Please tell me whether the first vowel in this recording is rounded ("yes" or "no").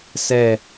no